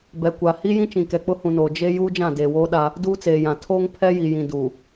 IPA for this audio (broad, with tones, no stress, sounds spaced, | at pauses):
b ɛ˨ kʷ a˨ h i˦ j ĩ˦ t͡ʃ ĩ˨ k ɛ˨ k͡p ʊ˦ h ũ˨ n oː˨ d͡ʒ e˦ j uː˦ d͡ʒ ã˦˨ d eː˨ w oː˦ ɗ a˦ | d uː˦ t͡s eː˨ j ã˨ tʰ oː˦ ŋ pʰ ɛ˦ j i˨ j ĩ˨ d uː˨